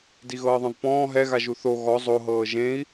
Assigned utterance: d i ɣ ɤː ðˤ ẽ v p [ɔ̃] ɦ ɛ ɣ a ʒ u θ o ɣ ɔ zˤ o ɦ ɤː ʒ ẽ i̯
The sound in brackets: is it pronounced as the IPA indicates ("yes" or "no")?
no